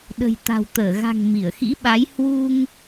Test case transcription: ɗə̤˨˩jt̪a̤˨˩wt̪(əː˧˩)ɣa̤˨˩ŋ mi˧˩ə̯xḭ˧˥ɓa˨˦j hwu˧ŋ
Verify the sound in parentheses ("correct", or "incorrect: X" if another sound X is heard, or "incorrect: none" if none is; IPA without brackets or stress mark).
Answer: correct